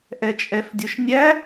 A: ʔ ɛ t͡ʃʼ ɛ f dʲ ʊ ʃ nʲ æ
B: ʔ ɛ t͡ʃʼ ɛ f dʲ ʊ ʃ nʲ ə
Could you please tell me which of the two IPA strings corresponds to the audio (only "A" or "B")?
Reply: A